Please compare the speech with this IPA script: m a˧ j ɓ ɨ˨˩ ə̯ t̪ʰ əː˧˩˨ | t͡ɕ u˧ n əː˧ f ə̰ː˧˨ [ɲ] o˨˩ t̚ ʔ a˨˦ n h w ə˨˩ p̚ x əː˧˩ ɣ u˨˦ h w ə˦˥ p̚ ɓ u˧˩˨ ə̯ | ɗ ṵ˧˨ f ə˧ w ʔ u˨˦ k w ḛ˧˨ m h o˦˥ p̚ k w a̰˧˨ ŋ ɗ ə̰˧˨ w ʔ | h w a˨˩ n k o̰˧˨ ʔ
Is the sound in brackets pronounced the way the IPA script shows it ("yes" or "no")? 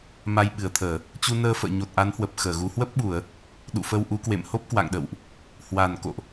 yes